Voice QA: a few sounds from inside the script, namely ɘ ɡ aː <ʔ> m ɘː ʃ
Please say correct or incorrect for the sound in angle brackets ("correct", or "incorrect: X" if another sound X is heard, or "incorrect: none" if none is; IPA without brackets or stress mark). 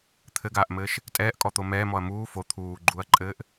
correct